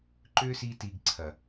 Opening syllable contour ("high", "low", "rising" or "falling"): high